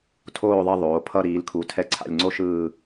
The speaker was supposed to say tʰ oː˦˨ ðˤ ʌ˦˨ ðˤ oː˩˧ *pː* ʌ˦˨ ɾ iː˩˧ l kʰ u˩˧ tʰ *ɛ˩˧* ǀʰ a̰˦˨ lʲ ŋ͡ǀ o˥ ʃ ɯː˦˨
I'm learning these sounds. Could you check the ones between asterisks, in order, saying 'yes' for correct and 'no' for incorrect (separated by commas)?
no, no